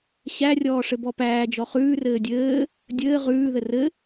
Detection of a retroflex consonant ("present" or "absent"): present